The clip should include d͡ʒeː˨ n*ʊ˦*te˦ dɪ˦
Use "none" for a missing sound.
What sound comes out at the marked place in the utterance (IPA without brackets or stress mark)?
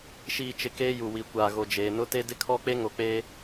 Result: ʊ˦